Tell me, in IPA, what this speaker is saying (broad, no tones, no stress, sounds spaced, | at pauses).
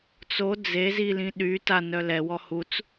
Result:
t͡s o d͡z e z i l ĩ ɗ y t a n œ l ɛ w ɔ h u t͡s